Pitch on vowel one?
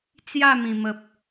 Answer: falling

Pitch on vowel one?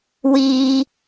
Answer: high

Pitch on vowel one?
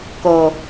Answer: low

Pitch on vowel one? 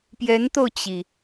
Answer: rising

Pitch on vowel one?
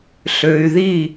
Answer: low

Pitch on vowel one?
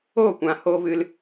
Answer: falling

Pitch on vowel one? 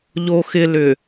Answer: low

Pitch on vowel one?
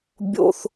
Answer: high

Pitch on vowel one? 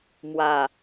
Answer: low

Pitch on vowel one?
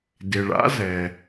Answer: low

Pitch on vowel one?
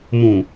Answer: low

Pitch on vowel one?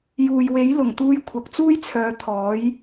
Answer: low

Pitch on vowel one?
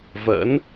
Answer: rising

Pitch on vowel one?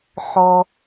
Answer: high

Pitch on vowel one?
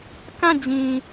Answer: falling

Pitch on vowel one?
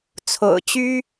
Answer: low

